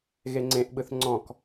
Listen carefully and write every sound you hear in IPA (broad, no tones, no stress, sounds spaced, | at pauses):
ɣ e ŋ͡ǀ ẽ ʔ ɓ ɯ θ ŋ͡ǀ ɔ̃ k